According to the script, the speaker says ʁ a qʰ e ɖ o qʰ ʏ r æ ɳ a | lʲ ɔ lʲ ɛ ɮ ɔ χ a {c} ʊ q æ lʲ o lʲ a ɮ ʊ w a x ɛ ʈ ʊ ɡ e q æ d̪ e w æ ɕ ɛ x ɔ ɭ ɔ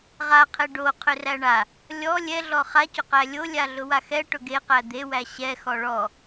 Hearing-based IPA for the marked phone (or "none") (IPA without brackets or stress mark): c